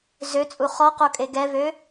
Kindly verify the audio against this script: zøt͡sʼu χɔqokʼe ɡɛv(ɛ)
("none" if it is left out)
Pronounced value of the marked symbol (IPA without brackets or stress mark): ø